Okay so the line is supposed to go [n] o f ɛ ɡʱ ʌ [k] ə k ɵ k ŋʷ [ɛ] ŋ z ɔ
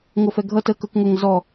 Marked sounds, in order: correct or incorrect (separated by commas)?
incorrect, incorrect, correct